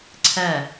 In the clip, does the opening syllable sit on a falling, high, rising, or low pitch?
falling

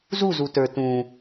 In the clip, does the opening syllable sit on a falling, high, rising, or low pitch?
falling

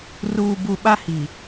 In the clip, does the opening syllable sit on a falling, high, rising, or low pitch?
low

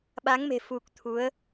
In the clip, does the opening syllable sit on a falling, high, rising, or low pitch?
rising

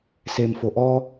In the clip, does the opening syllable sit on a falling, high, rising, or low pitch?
low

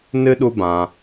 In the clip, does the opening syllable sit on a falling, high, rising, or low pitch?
high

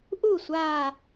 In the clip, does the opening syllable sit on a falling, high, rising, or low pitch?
falling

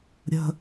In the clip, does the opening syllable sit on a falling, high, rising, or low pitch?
high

